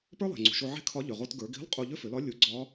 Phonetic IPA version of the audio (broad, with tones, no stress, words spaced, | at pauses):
pə˞˥lˠe̤˩ ŋ͡ǀṳ˩ʃo˧ ʕe̤˥kʰɒ˧˥ ʎʏ˩ʁo˧tɡə˞˩˧ɡi̤˧˥lˠ qʼu˧ʎʏ˥fʏ˩˧lɒ˧˥ lʲu˩˧ɡ͡ǀɒ˧˥